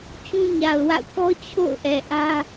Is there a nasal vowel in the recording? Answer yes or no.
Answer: yes